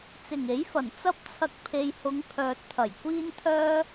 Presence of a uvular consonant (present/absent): absent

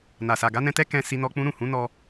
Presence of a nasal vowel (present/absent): present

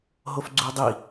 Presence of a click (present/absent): present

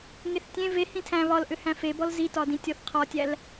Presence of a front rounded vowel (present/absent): present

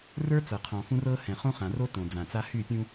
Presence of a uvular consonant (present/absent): present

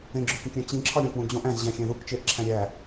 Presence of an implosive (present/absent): absent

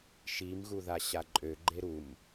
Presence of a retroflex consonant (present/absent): absent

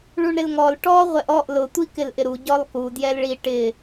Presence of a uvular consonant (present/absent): present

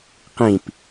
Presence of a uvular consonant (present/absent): present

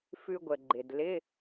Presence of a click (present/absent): present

